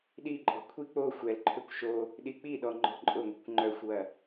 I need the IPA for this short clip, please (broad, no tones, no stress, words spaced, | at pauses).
ɗiǃʼɔ̤ kʷʰi k͡po xʷɛlǃʰʏkʷ ʃo | ɗik͡piɗɔ ŋ͡ǃɔ̤ǃʼʊŋʷi̤kʷ ŋ͡ǃœxʷwɐ